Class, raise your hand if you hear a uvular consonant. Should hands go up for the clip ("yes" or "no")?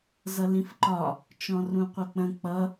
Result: yes